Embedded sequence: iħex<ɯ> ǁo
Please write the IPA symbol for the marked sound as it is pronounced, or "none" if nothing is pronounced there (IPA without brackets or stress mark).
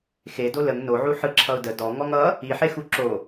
u